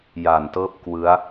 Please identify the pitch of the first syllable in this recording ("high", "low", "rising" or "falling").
low